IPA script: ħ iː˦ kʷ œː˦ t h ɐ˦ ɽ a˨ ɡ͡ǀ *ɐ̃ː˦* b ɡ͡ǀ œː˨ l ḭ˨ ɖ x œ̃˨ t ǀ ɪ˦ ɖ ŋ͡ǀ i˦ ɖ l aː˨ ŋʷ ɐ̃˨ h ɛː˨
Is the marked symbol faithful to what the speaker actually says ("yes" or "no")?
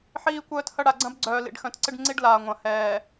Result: no